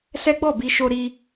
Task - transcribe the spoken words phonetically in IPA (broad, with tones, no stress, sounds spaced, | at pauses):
s ɛ˦ ɡ͡b ɔ˦˨ b i˧ ʃ o˧ ɾ i˧